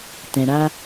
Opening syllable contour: low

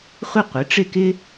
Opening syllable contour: high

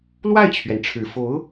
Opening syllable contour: falling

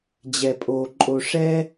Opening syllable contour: low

